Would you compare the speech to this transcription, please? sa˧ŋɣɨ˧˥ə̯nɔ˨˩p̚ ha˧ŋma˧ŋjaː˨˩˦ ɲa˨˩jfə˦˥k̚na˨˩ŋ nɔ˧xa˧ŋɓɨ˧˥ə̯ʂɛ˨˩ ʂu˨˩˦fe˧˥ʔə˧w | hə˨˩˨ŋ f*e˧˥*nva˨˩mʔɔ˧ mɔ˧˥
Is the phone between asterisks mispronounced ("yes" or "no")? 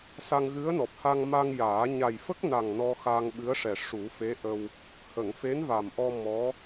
no